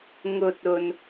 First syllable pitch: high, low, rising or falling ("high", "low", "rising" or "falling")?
low